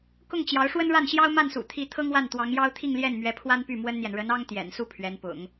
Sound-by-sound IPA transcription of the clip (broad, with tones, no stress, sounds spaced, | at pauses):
k ʊ˥˩ ŋ t͡ɕ j ɑ˧˥ ʊ̯ ʂ w ə˥ n ɻ a˥˩ n ɕ j ɑ˥ ʊ̯ m a˥˩ n s ṵ˨˩ t̪ʰ i˧˥ t̪ʰ ɤ˥ ŋ w a˥˩ n t̪ w ɑ˧˥ ŋ j ɑ˥ ʊ̯ t̪ʰ i˥˧ ŋ l j ɛ˥˩ n m ɥ ɛ˧˥ pʰ w a˥ n p y˥˩ m w ə˥ n n̪ j ɛ˨ n ɻ ə˧˥ n ɑ˥ ŋ t̪ j ɛ̰˨˩ n s u˥˩ pʰ ɥ ɛ˧˥ n p ʊ̰˨˩˦ ŋ